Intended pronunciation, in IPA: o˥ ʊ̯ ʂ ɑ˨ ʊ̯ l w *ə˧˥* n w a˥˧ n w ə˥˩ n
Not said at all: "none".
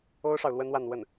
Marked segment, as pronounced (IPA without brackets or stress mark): ə˥